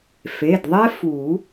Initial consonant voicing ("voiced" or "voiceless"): voiceless